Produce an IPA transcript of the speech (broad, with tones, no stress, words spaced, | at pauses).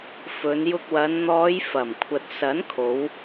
fɵ˨˧njʊ˧k̚wɐ˨˧n n̪ɔː˨˧j fɐ˨˩mkʷʰɐ˨t̚sɐ˨˥nkʰo˨˧w